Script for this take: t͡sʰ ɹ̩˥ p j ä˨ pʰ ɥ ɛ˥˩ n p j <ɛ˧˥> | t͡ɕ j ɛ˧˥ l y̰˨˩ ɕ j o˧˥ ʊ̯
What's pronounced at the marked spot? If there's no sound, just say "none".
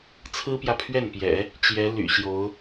ɛ̰˨˩˦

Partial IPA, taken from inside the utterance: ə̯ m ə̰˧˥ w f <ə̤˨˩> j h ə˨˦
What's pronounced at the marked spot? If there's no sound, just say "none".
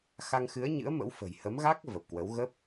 ə̤˨˩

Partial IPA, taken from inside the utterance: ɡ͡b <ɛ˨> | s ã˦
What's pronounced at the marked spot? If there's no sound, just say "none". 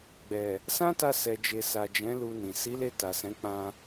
ɛ˨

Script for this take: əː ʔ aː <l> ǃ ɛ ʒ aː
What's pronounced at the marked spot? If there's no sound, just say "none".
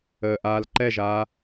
l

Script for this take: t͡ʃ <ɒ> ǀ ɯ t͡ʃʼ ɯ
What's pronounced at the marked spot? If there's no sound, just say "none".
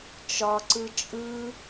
ɒ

